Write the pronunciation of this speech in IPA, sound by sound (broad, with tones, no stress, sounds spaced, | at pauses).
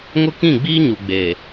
ŋ ʊ˦ k ĩ˦˨ ɡ͡b iː˦ ɲ u˨ ɡ͡b e˨